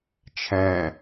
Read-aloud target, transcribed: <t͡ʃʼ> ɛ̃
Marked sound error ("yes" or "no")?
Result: yes